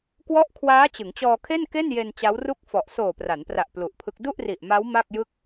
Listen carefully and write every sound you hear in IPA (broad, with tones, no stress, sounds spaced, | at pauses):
k w ɔ˦˥ ʔ kʰ w aː˦˥ t͡ɕ ɯ˩˦ ŋ t͡ɕ ɔː˧ kʰ e˥˩ n k e˥˩ n j e˧ n t͡ɕ a˦˥ w r u˥˩ k̚ f ɔ˨˩ ʔ s oː˨˩ p r a˩˦ n p r a˨˩ ʔ p l u˨˩ ʔ pʰ ɯ˦˥ k̚ d u˥˩ ʔ r i˨˩ ʔ m a˦˥ w m a˥˩ k̚ j ɯ˥˩ k̚